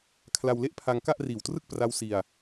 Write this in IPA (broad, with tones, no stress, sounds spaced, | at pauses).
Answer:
kʰ l a˧ w l e˥˩ ʔ pʰ a˧ ŋ k a˥˩ ʔ r iː˨˩ w t r ɯ˥˩ k̚ p r a˦˥ w s i˧ a̯